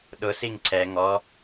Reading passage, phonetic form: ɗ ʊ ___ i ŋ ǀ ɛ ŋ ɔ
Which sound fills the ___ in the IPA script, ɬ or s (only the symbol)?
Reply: s